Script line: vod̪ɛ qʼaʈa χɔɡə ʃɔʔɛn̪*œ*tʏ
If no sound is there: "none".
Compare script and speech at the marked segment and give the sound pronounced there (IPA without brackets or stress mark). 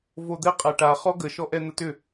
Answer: ə